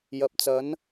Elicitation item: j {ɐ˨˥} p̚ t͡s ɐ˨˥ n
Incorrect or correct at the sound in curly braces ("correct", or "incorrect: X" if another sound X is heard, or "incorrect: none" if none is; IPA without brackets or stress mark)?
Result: incorrect: ɐ˨